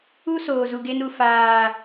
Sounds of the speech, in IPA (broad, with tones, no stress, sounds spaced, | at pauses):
u˦ s oː˨ z u˨ ɡ e˦ n u˨ f aː˨